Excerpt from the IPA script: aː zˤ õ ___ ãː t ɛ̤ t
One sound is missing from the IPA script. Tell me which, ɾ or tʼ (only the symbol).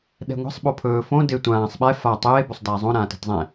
ɾ